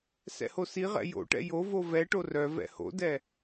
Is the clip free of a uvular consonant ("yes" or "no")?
no